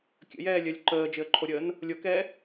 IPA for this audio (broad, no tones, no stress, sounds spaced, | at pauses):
kʲ ə̰ j ɛː lʲ œ lʲ ǃ əː d͡ʒ ɪ ə̯ ǃʰ o ɾʲ əː n | lʲ o k ɛː